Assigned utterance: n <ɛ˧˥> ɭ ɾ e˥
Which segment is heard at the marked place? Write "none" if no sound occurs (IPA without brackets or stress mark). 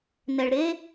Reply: ɛ˩